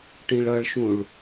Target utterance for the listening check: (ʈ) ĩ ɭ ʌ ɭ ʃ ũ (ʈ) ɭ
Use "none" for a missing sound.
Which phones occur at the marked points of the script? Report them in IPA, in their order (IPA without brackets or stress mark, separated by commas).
ʈ, none